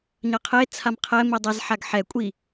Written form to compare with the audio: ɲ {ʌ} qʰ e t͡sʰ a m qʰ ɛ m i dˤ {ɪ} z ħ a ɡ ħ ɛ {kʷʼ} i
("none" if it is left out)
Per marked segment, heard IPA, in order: ʌ, ɛ, kʷʼ

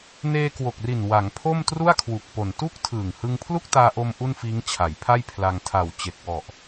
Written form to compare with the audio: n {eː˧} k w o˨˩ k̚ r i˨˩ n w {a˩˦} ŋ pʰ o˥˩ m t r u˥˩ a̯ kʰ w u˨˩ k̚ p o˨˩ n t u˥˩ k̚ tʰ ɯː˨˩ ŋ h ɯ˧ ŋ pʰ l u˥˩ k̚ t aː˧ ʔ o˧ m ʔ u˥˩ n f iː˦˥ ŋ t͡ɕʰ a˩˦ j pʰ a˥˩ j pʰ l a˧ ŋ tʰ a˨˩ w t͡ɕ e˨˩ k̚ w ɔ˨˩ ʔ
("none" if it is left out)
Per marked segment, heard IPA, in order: eː˧, a˩˦

